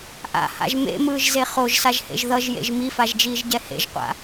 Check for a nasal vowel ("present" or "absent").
absent